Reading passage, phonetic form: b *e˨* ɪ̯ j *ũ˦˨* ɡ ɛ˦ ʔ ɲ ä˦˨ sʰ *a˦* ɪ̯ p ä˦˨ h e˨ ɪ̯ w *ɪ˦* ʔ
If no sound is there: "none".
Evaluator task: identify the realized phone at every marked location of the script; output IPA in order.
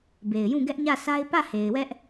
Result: e˨, ũ˦˨, a˦, ɛ˦

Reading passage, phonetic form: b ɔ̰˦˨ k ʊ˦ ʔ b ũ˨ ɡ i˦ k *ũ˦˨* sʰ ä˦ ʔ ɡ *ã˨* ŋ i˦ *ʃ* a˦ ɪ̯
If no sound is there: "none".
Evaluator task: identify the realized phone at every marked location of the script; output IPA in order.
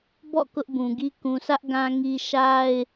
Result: ũ˨, ã˦, ʃ

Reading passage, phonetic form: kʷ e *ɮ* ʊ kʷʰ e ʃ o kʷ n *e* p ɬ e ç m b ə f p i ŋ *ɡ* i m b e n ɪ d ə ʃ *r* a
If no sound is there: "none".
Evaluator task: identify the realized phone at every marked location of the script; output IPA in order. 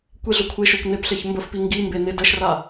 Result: ɮ, e, ɡ, r

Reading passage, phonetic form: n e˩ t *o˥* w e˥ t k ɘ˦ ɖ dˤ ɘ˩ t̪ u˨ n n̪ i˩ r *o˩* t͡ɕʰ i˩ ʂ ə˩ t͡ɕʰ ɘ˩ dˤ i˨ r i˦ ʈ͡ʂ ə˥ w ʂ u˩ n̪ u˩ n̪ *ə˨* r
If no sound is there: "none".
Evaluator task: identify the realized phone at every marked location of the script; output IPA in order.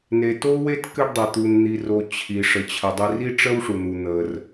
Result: o˥, o˩, ə˩

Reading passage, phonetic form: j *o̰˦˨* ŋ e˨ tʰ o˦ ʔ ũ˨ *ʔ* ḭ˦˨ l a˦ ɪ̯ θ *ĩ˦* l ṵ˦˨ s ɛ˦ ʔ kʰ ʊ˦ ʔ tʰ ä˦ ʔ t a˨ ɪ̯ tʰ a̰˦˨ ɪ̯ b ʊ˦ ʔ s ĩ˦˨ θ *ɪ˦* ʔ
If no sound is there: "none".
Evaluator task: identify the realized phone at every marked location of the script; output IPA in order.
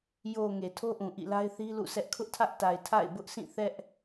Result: o˨, ʔ, i˦, ɛ˦

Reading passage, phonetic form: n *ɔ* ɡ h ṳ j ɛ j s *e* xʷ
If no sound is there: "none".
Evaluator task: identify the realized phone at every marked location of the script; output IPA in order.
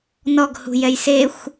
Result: ɔ, e

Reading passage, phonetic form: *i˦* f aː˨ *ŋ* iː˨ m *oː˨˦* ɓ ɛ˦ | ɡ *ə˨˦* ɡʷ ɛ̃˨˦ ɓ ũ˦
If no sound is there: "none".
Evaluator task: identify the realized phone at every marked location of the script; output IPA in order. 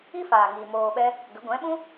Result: i˦, ŋ, oː˧, ə˨˦

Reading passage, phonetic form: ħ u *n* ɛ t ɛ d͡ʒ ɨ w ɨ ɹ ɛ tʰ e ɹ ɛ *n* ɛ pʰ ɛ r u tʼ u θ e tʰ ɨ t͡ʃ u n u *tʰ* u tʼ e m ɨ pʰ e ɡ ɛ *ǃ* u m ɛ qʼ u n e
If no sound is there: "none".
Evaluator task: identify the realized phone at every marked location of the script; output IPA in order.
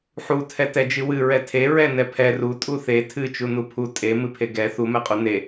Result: tʰ, n, pʰ, θ

